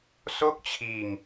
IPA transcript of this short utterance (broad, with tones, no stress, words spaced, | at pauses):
so˥˩k̚t͡ɕʰiː˧ŋ